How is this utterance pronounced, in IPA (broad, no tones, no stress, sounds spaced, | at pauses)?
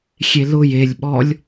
xʲ e l ʊ j e lʲ ɓ ɔ lʲ